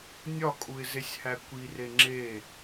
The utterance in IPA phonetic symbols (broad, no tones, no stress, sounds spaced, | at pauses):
nʲ ɒ kʼ u ɪ̯ z e sʲ h æ kʷ i r e ŋ͡ǁ e